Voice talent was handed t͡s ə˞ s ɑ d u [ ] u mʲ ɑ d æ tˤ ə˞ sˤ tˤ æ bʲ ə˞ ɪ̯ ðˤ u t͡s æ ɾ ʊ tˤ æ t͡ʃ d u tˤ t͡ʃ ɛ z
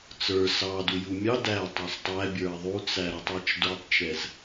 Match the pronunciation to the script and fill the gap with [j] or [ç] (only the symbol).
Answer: j